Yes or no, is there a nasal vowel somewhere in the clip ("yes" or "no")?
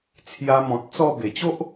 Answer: yes